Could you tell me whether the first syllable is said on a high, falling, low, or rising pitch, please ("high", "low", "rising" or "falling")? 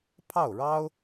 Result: falling